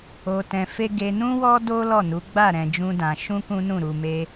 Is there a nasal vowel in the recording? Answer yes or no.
yes